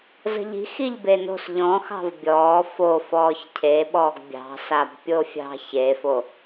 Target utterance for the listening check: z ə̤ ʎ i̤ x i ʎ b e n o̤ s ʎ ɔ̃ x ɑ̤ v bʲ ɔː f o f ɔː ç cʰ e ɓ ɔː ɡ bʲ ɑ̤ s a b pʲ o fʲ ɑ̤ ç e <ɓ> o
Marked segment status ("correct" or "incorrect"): incorrect